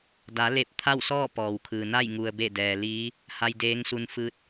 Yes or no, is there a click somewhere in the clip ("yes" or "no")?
no